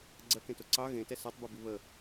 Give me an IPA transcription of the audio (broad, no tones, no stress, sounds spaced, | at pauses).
ɡ͡ǀ ɜ k ẽ t o ǀ ɑ ɣ ẽ t ɛ s ɑ tˤ b ɨ b i β ə